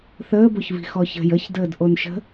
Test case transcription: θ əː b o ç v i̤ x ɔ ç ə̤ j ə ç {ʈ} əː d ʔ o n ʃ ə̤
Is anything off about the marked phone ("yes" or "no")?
yes